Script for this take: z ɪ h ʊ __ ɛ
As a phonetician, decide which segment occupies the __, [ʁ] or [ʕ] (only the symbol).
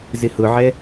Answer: ʕ